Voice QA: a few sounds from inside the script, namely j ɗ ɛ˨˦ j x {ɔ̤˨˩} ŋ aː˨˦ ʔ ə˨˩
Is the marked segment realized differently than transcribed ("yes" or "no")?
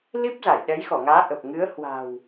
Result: yes